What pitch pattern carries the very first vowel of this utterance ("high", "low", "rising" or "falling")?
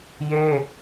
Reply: high